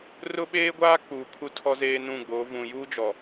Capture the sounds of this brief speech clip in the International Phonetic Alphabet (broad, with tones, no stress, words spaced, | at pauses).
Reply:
rʊ˦ɓeː˦ɡʷaː˦ k͡puː˨kʰu˦tʰɔ˦ zeː˦nũ˦˨ɡ͡bo˨˦ vũ˨juː˦d͡ʒɔ˨